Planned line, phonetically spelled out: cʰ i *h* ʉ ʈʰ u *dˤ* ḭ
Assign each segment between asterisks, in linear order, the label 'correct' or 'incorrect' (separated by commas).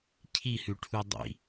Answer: correct, correct